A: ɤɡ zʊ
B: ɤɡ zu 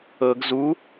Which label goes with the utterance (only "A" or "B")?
B